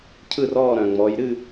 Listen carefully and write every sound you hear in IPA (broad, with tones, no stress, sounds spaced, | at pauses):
cʰ ɯ˥˧ r ɔː˥˧ ɾ œ̃˩ ŋ͡m ɔ˩˧ j ɾ ɨ˥˧